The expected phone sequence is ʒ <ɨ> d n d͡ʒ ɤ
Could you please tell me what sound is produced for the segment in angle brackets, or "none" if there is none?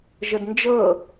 ə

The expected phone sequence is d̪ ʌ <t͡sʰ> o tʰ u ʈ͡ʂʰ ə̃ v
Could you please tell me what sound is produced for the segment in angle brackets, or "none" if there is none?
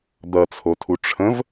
t͡sʰ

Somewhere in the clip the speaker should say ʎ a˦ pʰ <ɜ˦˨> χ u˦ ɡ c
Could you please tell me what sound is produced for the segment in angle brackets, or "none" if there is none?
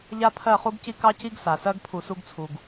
ɜ˦˨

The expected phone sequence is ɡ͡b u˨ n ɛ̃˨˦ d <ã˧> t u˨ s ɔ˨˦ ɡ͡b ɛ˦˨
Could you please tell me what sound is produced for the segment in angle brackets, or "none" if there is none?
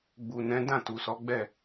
ã˦˨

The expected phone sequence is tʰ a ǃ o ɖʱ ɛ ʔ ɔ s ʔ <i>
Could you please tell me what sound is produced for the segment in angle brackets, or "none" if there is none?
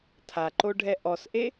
e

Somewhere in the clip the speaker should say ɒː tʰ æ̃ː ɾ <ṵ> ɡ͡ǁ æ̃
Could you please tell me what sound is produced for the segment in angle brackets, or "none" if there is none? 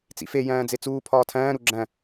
u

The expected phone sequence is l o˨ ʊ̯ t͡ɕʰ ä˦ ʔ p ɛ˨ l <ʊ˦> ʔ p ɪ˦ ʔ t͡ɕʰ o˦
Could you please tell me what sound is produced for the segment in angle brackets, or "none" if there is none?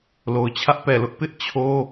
ʊ˦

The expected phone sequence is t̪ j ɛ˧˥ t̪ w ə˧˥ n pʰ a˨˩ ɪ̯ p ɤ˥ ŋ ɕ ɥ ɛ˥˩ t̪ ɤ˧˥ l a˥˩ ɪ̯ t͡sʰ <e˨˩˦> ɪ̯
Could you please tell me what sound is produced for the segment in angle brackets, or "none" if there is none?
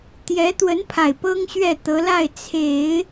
e˨˩˦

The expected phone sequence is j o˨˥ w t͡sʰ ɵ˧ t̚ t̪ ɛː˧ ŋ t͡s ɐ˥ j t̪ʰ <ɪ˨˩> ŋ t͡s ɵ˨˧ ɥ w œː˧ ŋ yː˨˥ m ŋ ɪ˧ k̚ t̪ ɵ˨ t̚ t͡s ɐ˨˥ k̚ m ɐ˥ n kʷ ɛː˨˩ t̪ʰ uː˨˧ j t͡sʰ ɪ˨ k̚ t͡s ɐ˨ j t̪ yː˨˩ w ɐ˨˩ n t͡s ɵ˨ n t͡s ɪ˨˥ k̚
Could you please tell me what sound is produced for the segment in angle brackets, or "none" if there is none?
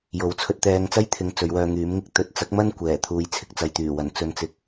ɪ˨˧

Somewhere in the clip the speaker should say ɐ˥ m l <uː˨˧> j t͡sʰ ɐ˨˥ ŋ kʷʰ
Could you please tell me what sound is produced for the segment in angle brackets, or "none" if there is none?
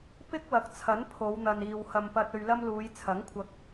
uː˨˧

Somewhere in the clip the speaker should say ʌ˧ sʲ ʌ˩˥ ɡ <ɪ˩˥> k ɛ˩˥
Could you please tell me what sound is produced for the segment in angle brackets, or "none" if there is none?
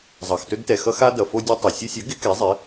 ɪ˩˥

